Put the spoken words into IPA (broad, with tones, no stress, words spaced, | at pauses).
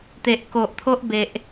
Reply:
t̪e˨ʔko˨ʔt̪ʰo˦ʔbe˨ʔ